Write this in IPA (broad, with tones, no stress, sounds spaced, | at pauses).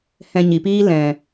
h ɛ̃˧ ɲ i˨ p iː˦ l ɛ̃˨